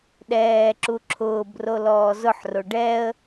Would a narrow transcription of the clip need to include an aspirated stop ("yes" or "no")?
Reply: yes